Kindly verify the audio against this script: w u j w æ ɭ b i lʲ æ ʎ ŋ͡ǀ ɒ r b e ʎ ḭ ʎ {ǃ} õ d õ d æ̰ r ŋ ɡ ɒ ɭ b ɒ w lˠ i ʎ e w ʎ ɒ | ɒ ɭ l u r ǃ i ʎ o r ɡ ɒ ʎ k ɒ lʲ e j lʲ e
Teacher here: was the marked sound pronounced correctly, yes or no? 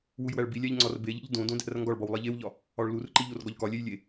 no